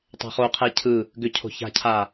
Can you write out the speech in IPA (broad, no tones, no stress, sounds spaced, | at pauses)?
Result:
tˤ ɛ̤ χ o qʰ ɛ cʰ ɯ | ɡ ʏ cʰ o̤ ç a̤ cʰ a